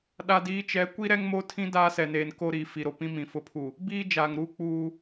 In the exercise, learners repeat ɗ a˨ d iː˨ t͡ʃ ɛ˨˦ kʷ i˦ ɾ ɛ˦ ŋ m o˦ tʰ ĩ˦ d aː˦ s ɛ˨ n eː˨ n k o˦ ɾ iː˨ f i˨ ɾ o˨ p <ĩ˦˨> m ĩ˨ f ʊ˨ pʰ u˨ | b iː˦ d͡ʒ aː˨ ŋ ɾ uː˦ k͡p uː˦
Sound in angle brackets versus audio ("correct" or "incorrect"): incorrect